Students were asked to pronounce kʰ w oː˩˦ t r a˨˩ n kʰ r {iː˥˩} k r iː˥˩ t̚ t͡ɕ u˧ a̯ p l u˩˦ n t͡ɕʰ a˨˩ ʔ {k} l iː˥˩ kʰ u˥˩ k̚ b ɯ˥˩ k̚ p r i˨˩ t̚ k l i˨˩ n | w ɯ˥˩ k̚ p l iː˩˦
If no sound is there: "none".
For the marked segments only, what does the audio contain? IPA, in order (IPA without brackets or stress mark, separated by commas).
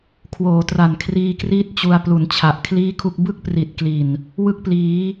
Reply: iː˧, kʰ